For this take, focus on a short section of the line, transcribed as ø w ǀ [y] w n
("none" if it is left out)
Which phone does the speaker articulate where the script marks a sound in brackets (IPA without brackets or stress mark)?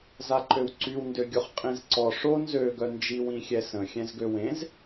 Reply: y